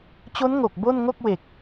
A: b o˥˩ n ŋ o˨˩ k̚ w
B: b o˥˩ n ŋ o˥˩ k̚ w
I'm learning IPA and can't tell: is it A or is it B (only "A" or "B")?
B